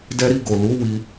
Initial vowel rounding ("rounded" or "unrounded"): unrounded